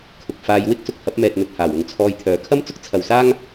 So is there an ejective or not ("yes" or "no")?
no